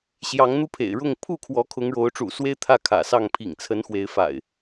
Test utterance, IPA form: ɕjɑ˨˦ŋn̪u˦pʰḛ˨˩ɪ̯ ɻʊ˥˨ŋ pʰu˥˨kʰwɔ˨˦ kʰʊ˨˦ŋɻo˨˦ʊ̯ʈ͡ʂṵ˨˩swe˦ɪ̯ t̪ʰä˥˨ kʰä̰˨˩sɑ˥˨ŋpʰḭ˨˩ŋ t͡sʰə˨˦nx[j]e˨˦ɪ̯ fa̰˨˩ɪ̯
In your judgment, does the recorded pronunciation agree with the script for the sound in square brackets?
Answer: no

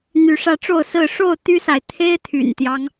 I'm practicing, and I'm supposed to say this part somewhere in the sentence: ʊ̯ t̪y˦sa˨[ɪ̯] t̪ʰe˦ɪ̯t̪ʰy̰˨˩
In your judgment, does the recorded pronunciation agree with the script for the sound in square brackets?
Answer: yes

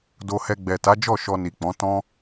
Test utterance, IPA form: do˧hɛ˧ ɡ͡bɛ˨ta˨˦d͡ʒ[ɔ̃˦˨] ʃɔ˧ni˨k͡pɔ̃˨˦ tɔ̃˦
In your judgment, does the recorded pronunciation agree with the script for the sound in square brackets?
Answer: no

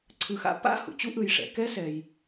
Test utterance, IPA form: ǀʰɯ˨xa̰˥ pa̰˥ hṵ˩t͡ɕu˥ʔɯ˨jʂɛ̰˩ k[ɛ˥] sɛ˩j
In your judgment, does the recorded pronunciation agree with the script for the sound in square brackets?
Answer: yes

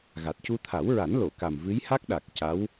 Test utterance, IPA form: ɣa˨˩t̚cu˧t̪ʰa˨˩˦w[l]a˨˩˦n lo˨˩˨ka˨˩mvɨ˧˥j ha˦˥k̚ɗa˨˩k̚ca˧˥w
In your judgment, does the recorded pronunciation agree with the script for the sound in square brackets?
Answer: no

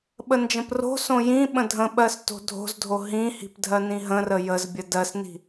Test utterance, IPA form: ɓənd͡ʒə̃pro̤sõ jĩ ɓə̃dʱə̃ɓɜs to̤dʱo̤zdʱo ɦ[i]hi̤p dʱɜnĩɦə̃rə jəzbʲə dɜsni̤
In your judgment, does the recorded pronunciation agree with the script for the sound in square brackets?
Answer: no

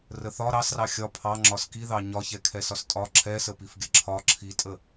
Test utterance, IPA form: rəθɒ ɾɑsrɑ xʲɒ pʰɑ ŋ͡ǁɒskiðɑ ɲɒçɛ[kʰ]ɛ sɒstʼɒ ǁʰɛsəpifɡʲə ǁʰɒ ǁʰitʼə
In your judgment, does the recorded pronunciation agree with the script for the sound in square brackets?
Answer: yes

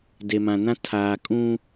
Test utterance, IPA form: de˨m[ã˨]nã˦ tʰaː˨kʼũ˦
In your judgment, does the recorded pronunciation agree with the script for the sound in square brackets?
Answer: yes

